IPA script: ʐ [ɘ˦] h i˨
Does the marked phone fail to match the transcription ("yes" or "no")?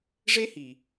yes